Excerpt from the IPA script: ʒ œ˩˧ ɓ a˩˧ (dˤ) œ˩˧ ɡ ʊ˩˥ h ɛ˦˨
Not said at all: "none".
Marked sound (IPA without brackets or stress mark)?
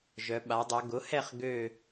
dˤ